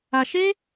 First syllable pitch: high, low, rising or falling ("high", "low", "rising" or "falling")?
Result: low